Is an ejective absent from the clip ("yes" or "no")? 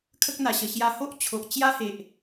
yes